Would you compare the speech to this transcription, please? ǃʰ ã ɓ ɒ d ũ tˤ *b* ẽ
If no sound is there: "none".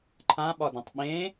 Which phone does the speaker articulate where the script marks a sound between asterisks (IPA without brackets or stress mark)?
ɓ